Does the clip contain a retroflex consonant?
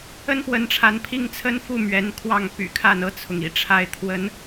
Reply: yes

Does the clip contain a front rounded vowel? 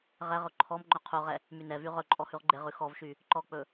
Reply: yes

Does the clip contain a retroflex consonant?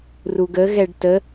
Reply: yes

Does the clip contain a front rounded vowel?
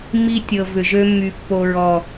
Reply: yes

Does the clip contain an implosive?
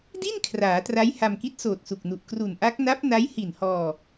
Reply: no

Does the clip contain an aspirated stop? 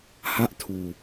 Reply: yes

